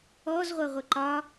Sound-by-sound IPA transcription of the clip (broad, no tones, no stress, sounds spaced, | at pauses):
ɔ z ʁʷ ɜ ʁʷ ə ǃ ɒ